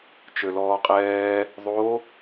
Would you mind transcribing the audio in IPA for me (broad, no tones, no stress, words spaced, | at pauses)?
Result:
t͡ʃølɔːqʼɛː | ðˤo